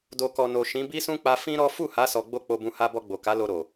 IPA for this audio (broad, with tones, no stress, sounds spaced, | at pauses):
d o˨ k ɔ˨ n o˨ ʃ ĩ˨˦ b i˦ s ũ˦ k͡p a˧ f ĩ˦ ɾ ɔ˦ f u˦˨ h a˨˦ s ɔ˧ ɡ͡b o˦ k͡p o˧ b ũ˧ h a˧ b ɔ˧ ɡ͡b o˨ k a˨˦ l o˧ ɾ o˨